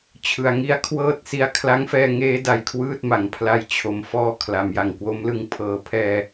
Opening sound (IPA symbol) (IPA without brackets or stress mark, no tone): t͡ɕʰ